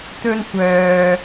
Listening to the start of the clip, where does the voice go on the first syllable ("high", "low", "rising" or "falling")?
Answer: high